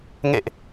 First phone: ŋ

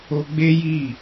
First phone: o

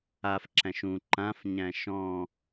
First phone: a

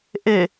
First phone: ʔ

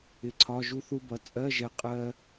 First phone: ɪ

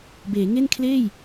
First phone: b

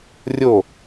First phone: rʲ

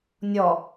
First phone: nʲ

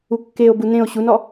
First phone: u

